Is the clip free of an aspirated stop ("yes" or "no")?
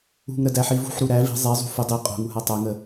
yes